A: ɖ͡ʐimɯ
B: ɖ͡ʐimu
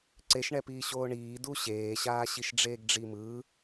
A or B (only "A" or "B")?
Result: A